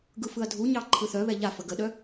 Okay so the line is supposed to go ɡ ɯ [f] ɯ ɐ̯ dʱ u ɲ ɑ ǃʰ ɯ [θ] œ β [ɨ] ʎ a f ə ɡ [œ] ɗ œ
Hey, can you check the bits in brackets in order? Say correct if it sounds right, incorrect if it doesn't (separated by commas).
correct, correct, incorrect, incorrect